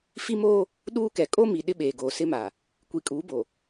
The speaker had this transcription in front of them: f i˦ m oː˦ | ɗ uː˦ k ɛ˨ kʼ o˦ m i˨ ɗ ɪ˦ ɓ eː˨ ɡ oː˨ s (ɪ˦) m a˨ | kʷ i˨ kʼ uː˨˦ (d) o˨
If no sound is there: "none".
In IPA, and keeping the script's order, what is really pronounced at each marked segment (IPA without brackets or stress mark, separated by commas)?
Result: ɪ˦, b